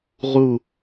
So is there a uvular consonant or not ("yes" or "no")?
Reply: yes